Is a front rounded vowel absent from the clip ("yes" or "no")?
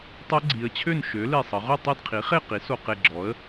no